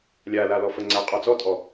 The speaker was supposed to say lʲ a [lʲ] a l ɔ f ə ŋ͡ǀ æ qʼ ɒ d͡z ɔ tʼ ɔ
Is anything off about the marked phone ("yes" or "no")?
yes